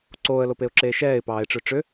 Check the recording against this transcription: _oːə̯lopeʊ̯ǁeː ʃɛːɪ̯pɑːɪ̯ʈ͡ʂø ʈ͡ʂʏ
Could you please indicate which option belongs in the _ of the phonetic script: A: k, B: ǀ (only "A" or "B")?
B